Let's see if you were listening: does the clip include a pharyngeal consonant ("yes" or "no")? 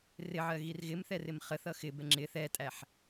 yes